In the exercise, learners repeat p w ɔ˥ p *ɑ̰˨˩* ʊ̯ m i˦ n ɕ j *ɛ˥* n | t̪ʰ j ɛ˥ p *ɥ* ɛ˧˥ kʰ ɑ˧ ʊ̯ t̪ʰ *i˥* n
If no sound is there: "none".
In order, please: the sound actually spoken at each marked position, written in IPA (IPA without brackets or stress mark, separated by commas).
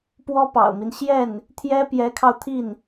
ɑ̰˨˩, ɛ˥˩, j, i˥˩